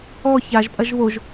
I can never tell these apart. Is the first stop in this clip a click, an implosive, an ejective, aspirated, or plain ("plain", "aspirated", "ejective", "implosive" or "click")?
ejective